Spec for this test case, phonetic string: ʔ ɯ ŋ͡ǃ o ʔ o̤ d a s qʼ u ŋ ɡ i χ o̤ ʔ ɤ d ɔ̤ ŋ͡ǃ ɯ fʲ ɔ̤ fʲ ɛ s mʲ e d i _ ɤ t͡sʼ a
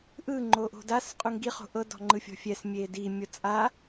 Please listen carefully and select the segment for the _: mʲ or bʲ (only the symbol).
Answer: mʲ